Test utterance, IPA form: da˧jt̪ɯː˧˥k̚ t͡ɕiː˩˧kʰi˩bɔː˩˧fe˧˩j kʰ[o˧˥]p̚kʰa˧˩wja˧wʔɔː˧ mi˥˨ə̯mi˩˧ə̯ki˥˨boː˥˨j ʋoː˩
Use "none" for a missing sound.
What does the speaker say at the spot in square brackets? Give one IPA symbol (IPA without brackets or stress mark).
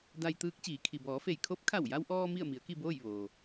o˧˥